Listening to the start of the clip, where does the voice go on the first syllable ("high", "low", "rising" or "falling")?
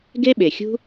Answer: high